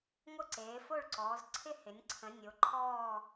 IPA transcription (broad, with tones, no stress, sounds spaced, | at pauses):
ŋʷ ə˥˧ ǀ eː˨˦ f o˥˧ ɭ ǀ ɔː˨˦ z ǀʰ ɪ˥˧ h ɪ˨˦ nʲ ǀʰ ə̃˨˦ nʲ o˨˦ ǃʰ ɔː˥˧